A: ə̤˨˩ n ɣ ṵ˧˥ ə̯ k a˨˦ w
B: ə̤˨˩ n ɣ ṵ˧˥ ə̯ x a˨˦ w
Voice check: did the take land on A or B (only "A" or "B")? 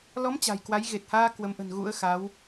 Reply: B